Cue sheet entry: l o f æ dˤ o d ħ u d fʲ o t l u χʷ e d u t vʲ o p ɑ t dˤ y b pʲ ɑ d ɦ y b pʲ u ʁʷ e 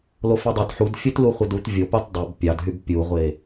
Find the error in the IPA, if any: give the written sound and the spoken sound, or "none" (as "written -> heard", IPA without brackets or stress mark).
none